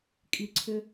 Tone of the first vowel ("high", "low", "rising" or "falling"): low